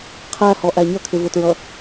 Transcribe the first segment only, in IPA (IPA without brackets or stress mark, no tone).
qʰ